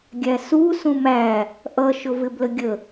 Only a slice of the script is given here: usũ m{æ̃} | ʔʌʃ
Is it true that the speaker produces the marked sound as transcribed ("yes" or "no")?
no